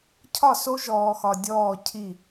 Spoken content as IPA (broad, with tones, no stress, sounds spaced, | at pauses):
cʰ ɒ˦˨ s o˦ ʒ ɔː˨ x ɒ˨ dʲ ɔː˦˨ cʰ i˦˨